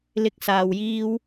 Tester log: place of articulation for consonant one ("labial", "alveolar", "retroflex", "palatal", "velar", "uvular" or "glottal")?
alveolar